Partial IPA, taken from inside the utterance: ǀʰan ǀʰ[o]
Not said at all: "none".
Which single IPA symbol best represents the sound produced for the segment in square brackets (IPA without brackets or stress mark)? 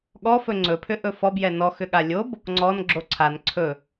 ɵ